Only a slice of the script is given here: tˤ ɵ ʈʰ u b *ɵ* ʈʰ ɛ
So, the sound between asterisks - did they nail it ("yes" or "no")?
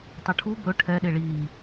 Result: yes